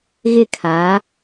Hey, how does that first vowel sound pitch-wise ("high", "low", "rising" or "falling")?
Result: falling